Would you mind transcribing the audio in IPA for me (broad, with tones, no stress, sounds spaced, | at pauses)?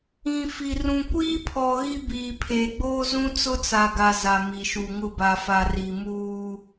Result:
ĩ˨ f i˨ r ũ˨ kʷ iː˦ pʰ ɔ˨ ɣ i˦ b iː˨ pʰ eː˨ ɡ͡b oː˦ z ũ˦ t͡s ʊ˦ t͡s a˨ ɡ a˨ z a˨ m i˨ ʃ u˨ ŋ ʊ˦˨ b a˨ f a˨ r i˨ m uː˦